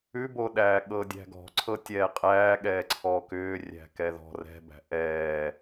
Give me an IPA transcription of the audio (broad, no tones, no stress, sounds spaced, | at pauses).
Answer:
ʉ b o ɗ æː ɠ ɤː dʲ æ̤ ɡ ɔ̤ ǀʰ ɤ tʲ ɛː qʼ æː ɠ ɛː ǀʰ ɔː k ʏː rʲ æ̤ k ɛ ð ɔ̤ r ɛ̤ b æ̤ ʔ ɛː